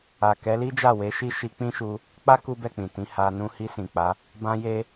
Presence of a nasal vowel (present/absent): present